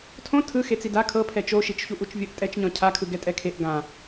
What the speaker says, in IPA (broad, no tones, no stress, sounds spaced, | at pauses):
tʰ õ tʰ ɯ x e t͡s i d a kʰ ɤ pʰ ɛ t͡ʃ o ʃ i t͡ʃ ç u ʔ u t͡ʃ vʲ ɤ ʔ tʼ ɛ t͡ʃ ɲ ɔ̃ cʰ a kʰ ɯ ɡ ɛ tʼ ɛ kʰ e ʔ ɡ ã